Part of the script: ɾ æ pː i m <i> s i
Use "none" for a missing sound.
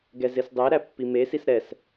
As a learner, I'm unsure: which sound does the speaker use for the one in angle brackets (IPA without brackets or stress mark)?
e